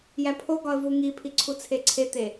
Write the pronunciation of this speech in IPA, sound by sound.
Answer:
j æ pʰ o ɡ ɒ ə̯ v u ŋ i pʰ i ǀʰ u t͡sʰ e ǀʰ e t̪ e

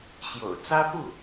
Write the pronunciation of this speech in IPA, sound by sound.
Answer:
ɕ j o̰˨˩ ʊ̯ t͡s ä˥ p u˥˩

